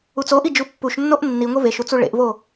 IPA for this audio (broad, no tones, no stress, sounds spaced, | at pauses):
u t͡s o ʔ i d͡ʒ u pː u ʃ nː o ʔ nː i ŋʷ e v e ʃ u t͡s u ɭ ḛ ʔ v o